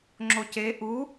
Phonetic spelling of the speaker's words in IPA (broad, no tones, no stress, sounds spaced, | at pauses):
ŋ͡ǁ o c e ʔ u